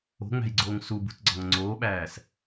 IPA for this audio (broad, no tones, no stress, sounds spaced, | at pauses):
o̤ ŋ͡m æ̤ j ɡ͡ǀ oː ŋ s u b ṳ t ɡ͡ǀ ɒ ŋ ŋ͡ǀ oː ɓ æː s